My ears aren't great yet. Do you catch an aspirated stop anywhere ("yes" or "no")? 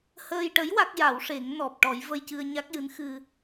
no